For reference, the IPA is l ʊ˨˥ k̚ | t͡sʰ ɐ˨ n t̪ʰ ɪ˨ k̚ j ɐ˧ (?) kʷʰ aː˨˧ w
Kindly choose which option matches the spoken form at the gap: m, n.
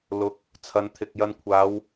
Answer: n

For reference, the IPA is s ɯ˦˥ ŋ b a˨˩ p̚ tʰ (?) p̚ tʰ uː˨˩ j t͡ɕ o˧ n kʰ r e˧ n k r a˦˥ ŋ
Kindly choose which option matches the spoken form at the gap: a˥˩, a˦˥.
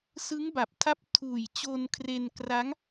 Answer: a˦˥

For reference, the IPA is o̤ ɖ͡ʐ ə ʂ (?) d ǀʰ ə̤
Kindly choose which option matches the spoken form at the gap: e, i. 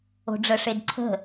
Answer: e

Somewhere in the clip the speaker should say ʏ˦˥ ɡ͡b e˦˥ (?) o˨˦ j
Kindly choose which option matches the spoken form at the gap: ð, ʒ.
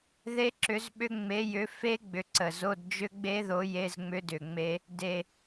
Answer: ð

